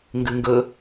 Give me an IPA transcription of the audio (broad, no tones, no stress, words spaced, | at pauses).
ŋɡʉŋɡə